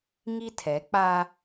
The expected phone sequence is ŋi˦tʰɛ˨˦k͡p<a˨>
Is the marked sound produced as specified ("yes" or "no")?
no